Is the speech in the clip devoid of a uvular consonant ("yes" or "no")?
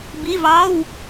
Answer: yes